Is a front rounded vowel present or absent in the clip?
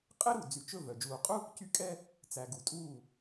present